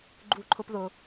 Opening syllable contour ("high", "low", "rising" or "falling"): high